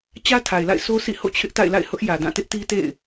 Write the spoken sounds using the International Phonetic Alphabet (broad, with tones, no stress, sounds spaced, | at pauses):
t͡ɕ ä˦ tʰ a˨ ɪ̯ l a̰˦˨ ɪ̯ s o˦ s ḭ˦˨ h o̰˦˨ t͡ɕʰ ɪ˦ ʔ t a̰˦˨ ɪ̯ l a̰˦˨ ɪ̯ h ʊ˦ ʔ j ä˨ d ã˦˨ t ɪ˦ ʔ t i˦ t ḛ˦˨ ɪ̯